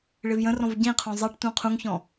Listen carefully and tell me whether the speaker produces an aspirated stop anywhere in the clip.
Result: yes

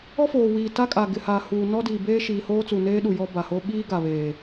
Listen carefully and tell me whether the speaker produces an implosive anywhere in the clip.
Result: yes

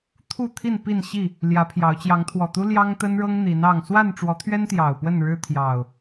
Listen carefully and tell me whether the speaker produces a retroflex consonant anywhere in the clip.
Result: yes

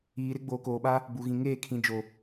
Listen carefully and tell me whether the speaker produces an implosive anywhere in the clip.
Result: yes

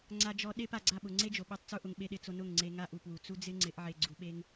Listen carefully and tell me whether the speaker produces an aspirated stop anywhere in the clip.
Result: no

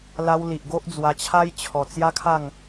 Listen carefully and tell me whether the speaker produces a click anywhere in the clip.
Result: no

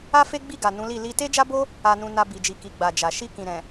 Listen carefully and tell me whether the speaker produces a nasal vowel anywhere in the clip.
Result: yes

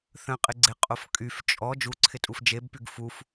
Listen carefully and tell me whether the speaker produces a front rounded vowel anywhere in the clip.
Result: yes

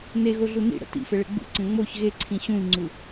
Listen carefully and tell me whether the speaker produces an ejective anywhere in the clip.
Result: no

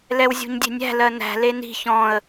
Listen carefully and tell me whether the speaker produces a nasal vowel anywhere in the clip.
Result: yes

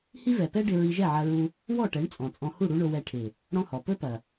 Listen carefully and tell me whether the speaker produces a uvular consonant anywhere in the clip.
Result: no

